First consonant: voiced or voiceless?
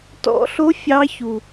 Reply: voiceless